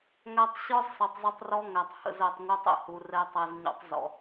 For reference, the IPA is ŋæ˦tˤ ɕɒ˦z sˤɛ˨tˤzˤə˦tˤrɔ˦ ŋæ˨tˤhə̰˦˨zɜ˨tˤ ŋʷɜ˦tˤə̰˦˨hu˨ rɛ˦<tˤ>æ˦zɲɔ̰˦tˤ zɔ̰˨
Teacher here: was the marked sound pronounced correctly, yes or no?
yes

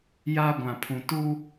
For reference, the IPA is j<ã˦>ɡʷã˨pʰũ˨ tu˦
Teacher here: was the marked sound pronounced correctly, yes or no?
no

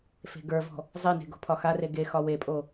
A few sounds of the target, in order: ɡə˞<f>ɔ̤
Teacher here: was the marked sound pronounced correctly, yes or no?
no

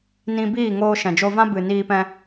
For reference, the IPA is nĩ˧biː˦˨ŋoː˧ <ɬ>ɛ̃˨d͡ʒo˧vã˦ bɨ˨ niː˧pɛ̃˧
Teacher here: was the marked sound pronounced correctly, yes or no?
no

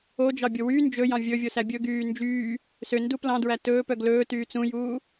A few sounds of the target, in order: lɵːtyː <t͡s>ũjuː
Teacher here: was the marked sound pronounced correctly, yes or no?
yes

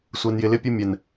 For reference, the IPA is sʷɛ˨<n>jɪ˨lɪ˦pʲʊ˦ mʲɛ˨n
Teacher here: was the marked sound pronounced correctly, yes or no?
yes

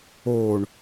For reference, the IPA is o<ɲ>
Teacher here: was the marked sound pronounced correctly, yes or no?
no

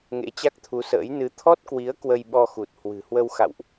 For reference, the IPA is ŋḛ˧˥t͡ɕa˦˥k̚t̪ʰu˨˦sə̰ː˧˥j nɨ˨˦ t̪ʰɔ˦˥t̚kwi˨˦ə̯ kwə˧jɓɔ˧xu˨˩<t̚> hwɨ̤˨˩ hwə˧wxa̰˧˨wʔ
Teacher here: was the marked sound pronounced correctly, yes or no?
yes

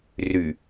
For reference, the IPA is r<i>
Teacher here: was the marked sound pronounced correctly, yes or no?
no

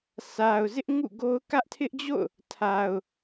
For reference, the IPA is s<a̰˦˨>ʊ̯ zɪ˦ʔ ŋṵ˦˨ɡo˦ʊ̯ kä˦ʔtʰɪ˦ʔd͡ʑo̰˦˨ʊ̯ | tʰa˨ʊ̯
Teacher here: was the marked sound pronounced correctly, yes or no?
no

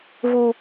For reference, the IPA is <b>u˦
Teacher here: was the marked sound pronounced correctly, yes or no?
no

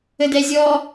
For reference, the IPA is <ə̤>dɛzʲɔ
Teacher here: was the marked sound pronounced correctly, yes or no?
no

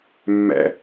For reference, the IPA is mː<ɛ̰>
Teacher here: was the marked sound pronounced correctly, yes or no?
yes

